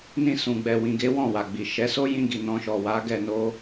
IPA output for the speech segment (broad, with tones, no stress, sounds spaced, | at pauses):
n ĩ˧ s ũ˨ ɡ͡b ɛ˨ w ĩ˨ ɡ e˨˦ w ɔ̃˦˨ w a˨ ɡ͡b i˨ ʃ ɛ˨˦ s o˦ j ĩ˧ ɡ i˨ n ɔ̃˧ ʃ ɔ˨ w a˨˦ ɡ ɛ˧ n o˦